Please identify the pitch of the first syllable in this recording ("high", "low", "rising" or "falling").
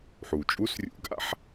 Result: low